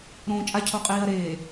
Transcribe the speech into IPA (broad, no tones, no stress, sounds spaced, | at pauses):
ɾ õː t͡ʃʼ a cʰ o qʼ iː ɐ̯ ɾ eː